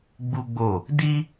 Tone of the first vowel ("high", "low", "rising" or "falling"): high